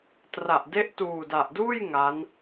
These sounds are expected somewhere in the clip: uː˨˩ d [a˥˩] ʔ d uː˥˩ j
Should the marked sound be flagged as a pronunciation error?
yes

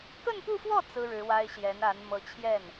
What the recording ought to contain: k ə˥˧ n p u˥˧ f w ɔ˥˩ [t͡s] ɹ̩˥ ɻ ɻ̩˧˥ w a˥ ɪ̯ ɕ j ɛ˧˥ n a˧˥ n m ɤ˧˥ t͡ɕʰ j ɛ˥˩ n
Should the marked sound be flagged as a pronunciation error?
no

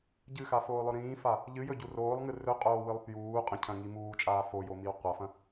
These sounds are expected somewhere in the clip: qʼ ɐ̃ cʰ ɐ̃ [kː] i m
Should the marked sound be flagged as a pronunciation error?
yes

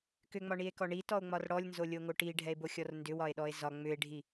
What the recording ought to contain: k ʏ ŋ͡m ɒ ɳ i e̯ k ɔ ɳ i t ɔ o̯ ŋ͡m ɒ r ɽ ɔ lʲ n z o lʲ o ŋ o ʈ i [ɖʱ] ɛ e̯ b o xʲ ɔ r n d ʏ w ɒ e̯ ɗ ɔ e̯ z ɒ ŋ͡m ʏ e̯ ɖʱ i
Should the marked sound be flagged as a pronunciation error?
no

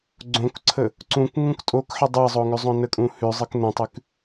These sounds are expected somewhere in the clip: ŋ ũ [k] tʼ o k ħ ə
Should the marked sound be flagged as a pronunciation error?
no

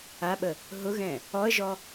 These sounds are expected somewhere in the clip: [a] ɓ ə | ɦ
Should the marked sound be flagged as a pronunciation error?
no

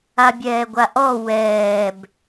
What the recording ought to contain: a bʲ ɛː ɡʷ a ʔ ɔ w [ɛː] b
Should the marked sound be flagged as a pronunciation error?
no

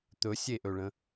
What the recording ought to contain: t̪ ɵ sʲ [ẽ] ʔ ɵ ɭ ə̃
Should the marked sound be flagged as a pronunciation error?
yes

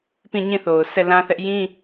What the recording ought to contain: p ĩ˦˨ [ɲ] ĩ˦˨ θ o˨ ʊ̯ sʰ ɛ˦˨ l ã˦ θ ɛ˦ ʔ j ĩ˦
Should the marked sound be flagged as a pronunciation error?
no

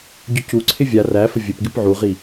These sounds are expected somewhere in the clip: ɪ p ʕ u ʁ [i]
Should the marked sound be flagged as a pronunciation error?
no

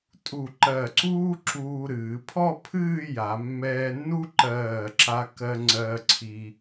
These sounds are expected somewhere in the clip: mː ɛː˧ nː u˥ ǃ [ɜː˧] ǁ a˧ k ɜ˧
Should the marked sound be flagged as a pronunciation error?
yes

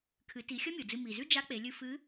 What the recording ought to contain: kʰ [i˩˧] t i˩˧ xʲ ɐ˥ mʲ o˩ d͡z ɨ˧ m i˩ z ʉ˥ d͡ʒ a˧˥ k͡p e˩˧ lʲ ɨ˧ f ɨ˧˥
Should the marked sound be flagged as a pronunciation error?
yes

